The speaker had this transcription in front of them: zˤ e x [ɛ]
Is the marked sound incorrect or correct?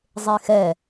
correct